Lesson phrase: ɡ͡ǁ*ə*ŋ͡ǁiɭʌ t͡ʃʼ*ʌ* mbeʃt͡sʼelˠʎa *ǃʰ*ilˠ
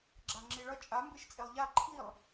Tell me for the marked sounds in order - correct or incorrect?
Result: incorrect, incorrect, correct

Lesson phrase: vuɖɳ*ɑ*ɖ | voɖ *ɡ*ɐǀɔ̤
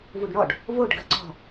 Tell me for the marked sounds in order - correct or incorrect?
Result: incorrect, correct

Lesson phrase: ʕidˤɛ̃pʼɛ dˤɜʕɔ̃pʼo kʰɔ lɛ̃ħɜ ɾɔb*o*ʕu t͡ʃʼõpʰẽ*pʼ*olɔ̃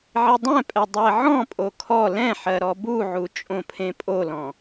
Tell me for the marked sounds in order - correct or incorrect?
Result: incorrect, correct

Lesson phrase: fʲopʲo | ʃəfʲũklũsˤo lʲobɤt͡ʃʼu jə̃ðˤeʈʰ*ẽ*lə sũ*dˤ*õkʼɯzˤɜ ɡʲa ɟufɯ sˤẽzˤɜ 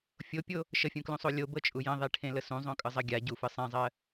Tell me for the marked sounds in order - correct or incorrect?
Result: correct, incorrect

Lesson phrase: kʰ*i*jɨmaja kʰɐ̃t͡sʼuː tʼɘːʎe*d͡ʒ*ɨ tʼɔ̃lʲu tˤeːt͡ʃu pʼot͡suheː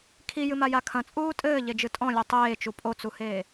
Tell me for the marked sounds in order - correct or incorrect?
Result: correct, correct

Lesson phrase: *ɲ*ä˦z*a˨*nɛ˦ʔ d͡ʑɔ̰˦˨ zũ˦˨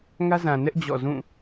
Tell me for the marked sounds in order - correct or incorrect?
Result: incorrect, incorrect

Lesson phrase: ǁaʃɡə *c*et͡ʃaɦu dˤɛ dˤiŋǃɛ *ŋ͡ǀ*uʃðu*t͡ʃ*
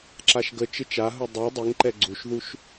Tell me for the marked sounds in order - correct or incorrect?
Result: incorrect, incorrect, incorrect

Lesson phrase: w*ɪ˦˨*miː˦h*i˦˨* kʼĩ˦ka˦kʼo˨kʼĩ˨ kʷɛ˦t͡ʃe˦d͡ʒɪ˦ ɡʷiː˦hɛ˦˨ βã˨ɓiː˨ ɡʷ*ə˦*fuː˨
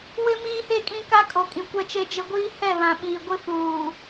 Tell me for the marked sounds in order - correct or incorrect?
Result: incorrect, incorrect, incorrect

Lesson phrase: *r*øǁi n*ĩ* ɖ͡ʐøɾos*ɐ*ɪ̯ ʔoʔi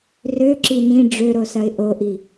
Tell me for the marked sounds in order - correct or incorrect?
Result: correct, correct, correct

